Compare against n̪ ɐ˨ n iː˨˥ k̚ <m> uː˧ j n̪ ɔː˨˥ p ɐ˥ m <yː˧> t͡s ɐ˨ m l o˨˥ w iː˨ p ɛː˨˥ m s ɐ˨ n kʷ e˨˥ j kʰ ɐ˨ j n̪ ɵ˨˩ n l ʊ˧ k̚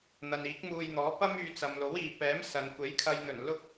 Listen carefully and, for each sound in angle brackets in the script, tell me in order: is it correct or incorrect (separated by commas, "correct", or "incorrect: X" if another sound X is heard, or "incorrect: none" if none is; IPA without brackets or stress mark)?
correct, correct